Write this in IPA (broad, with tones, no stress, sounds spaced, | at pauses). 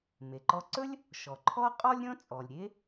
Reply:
m e˩ ǃ ɔ˧ ǀ ɵ˥ lʲ | ʃ ɔ˩ ǃʰ ɔ˥ qʼ ɔ˥ lʲ ɾʲ ɔ̃˥ t͡sʼ ɔ˩ lʲ ɾʲ e˥